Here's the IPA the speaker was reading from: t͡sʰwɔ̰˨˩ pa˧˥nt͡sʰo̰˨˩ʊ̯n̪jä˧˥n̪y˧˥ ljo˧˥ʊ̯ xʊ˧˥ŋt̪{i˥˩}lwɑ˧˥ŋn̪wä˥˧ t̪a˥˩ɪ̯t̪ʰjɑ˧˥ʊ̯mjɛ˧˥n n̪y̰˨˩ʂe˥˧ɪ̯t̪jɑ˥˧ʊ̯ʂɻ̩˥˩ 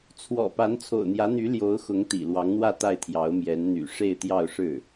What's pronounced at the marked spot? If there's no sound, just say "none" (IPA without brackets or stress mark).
ḭ˨˩